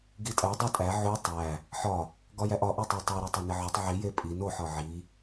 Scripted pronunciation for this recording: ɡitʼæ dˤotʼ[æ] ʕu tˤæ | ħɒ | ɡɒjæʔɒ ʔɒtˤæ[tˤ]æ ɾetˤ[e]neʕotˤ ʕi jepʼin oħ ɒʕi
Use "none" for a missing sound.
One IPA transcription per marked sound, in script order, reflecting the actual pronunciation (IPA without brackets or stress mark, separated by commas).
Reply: æ, tˤ, e